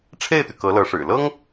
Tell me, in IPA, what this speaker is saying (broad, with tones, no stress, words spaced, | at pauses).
ʈ͡ʂʰe˥˩ɪ̯t̪y˩ kɤ˧˥lɤ˧˥ʂɻ̩˨˩ lɤ˥ŋ